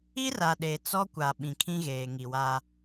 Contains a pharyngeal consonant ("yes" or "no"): no